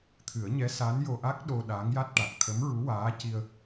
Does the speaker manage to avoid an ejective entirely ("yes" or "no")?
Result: yes